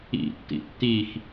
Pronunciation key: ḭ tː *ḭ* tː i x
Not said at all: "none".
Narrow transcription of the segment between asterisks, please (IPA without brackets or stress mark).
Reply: ḭ